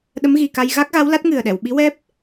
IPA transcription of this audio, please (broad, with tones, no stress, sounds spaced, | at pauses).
ɗ ə˧˥ m ɣ i˨˩ k a˧ j ɣ a˦˥ k̚ ɣ a˧˥ w l a˦˥ t̚ ŋ ɨ˨˩ ə̯ ɗ ɛ˨˩˨ w ɓ i˧˥ w ɛ˦˥ p̚